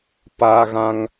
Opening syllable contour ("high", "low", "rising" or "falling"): high